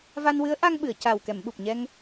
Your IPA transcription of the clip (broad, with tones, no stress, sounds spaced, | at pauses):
v a˧ n w ɨ˧˥ ə̯ ʔ a˧ ŋ ɓ ɨ˨˩˨ ə̯ c a˨˩ w k ɛ˨˩˨ m ɓ u˨˩ p̚ ɲ ɛ˧ ŋ